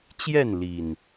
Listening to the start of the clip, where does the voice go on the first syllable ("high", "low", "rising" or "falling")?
falling